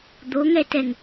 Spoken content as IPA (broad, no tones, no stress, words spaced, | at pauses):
d̪oŋɛtɛŋ